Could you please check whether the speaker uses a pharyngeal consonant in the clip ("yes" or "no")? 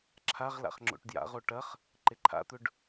no